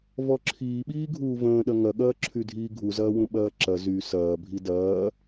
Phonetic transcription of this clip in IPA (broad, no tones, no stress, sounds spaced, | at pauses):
v ɔ ǁʰ iː ɓ iː ɡʱ uː v ə̃ː ɗ ɐ ŋ ɐ ɠ ɐː ǁʰ y dʱ iː ɡʱ u z ɐː w ũ ɓ ɐː ǁ ɐ z y s ɐː bʱ i d ɐː